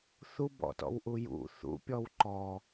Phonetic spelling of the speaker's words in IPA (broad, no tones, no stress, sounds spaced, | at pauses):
θ u b ɔ̰ t ɔ̰ w ʔ u j ṵ θ ṵ pʲ ɔ w ǃ ɔ